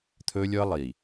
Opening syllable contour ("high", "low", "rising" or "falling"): high